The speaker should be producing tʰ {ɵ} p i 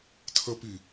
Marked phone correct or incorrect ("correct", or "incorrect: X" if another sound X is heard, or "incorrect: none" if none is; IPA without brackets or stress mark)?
incorrect: ə